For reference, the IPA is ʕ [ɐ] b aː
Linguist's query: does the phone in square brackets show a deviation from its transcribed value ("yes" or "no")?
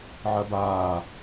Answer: no